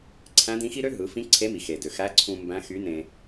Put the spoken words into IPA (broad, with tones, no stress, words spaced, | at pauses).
ǀʰæ̃˧˥dĩ˧˥xi˥ ɾø˥ɦɯ˩˧ fĩ˧˥ ǀʰe˧˥mi˩xe˩ dø˩xæ˧˥ǀʰũ˧ mbæ̃˧˥ xy˧˥nẽ˧